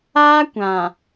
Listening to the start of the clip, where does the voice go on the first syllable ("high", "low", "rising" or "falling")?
high